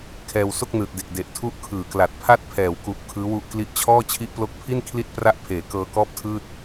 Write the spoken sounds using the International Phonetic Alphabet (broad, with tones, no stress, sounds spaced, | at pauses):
kʰ ɛː˧ w s o˥˩ k̚ n ɯː˨˩ t̚ d e˨˩ k̚ d e˨˩ ʔ tʰ u˥˩ ʔ kʰ ɯː˨˩ k l a˨˩ t̚ pʰ a˥˩ t̚ pʰ ɛː˩˦ w k u˨˩ ʔ kʰ ɯː˦˥ w u˦˥ ʔ k l i˦˥ ʔ t͡ɕʰ ɔː˥˩ t͡ɕʰ i˦˥ ʔ p l o˦˥ k̚ pʰ i˥˩ n kʰ l i˥˩ t̚ p r a˥˩ ʔ pʰ eː˩˦ k ɤː˧ k ɔː˥˩ p̚ tʰ ɯː˥˩ t̚